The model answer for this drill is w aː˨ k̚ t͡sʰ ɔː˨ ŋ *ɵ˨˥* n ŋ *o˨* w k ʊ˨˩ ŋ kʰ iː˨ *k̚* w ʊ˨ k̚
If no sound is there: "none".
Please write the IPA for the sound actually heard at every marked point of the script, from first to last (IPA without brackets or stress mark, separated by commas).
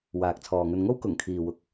ɵ˧, o˥, none